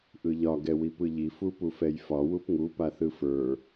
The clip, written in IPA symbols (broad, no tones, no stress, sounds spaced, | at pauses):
ʔ ɯ ʎ ɒ ɡ ɛ w i p ɯ ʎ i f u p u f ɛ j f ɒ w u p ŋ u p a θ ɯ f ə˞